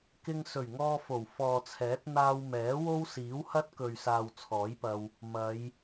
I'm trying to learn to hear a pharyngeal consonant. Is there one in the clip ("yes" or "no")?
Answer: no